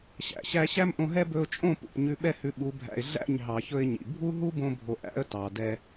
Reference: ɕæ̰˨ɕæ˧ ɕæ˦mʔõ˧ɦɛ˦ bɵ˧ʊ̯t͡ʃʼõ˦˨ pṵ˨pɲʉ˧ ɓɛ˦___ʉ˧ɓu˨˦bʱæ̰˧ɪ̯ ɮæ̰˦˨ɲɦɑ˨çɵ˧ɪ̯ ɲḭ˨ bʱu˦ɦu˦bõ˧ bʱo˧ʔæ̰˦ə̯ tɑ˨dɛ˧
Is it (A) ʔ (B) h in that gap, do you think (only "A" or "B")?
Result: B